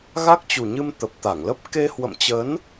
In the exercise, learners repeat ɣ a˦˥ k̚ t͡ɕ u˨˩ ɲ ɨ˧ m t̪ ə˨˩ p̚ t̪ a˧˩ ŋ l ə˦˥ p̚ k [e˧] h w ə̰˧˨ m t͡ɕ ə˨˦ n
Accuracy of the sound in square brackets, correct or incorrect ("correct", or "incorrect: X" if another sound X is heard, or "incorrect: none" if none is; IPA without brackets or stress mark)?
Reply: correct